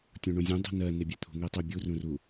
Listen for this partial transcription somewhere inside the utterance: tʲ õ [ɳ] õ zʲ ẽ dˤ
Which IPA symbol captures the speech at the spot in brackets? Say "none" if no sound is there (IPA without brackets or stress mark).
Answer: ɳ